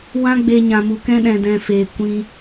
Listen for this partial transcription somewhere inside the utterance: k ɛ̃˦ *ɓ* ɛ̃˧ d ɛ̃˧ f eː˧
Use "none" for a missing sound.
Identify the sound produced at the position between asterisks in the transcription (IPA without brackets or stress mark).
ɗ